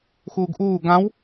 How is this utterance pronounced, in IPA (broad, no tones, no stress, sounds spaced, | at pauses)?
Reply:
x uː ɡ ʔ uː ɡ ã w